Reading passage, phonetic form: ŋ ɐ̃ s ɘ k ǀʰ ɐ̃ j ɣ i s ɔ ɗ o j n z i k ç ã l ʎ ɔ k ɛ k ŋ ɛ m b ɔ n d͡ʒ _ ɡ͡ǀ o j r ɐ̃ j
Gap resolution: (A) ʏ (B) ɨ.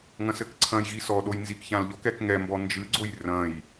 B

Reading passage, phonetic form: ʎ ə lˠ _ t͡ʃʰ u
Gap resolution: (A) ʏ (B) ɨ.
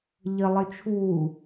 B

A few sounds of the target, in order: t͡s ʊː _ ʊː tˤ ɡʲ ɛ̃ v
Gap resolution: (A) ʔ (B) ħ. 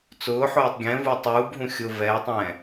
B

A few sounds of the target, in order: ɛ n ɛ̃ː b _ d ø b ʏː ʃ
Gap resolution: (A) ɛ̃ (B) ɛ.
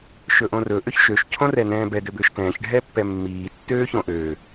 B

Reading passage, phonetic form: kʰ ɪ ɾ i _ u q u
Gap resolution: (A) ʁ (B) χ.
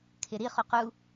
B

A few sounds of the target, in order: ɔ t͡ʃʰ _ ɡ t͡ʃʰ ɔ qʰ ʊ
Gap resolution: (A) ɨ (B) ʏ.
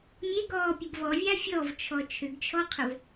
B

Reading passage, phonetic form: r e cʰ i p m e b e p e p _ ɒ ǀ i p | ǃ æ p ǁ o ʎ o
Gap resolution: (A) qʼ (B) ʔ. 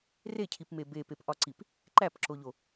B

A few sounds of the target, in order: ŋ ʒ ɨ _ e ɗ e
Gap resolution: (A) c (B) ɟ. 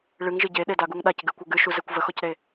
B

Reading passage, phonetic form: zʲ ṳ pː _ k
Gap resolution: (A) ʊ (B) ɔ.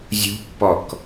B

